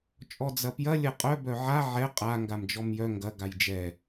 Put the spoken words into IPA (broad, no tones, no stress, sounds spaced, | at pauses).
t͡ʃʼ ɔ d͡z ɐ p j ɐ lʲ ɐ qʼ œ b œ ʕ a ʕ ɛ qʼ a ŋ ɡ a m d͡ʒ ɔ m j œ ŋ ɡ ɐ ɡ a j d͡ʒ ɛ